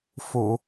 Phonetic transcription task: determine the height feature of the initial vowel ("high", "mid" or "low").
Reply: high